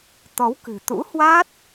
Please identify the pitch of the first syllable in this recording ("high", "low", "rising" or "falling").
rising